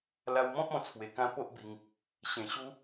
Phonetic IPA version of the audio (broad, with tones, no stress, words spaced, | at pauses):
la˧wmɔ̃˦p̚ɔ̃˧ t͡sʰwe˨˩kã˧ po˦ʔbi˧ŋ | ɕẽ˨˩ɕu˧